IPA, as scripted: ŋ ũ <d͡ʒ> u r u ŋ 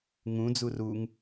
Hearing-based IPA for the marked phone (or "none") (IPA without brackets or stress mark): d͡z